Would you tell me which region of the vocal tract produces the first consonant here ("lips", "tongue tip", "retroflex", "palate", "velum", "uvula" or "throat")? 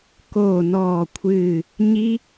velum